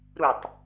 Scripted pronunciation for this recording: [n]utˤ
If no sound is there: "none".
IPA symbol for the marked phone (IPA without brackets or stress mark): ɾ